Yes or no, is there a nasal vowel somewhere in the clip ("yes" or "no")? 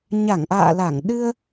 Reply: no